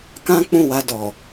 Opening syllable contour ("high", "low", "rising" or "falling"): high